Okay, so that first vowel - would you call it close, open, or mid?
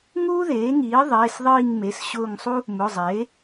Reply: close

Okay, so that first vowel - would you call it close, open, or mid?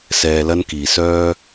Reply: mid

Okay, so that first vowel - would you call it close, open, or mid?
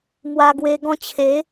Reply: open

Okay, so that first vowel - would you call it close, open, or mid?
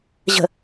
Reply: mid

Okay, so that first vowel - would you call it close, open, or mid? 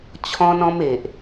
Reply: mid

